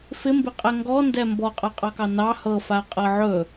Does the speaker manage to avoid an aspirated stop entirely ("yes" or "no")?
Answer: yes